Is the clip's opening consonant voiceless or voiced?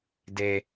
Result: voiced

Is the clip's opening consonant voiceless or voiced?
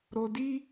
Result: voiced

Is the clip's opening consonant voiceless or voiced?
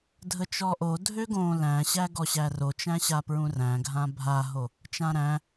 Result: voiced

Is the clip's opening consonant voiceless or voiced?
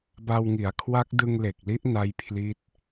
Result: voiced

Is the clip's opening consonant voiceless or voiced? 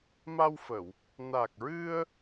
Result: voiced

